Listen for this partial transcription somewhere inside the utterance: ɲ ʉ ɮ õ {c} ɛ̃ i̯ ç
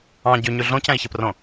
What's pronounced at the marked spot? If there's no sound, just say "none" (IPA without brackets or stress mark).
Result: c